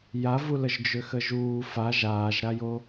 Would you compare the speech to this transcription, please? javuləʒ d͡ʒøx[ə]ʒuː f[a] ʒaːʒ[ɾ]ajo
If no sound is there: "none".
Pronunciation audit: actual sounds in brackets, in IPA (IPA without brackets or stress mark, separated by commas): ə, a, ɾ